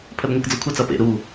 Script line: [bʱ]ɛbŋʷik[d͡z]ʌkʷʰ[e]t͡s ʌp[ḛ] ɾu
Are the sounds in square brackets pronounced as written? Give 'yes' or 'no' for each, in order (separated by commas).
no, yes, yes, yes